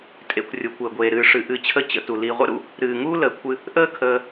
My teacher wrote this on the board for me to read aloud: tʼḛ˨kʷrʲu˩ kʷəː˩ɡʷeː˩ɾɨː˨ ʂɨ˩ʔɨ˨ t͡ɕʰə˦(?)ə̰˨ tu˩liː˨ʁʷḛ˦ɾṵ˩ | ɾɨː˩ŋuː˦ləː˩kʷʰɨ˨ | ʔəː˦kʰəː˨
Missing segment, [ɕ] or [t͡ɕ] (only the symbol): t͡ɕ